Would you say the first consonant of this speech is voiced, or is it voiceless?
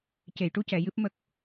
voiceless